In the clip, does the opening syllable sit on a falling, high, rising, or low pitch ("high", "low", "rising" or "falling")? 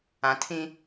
low